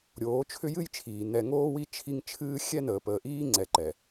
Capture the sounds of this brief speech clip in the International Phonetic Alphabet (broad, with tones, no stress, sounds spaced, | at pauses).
ɾʲ oː˨˦ t͡ʃʰ ʏ˦ j ɨ˦ j t͡ʃʰ iː˨ n ɛ˨ ŋ oː˦ w i˦ t͡ʃʰ i˦ ŋ t͡ʃʰ ɨː˦ xʲ ɛ˦ n əː˨ p əː˨ ʔ iː˦ ŋ͡ǀ ɛ˨ ǃ ɛ˨